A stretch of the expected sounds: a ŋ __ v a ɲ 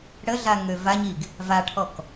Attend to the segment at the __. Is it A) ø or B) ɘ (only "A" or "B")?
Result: A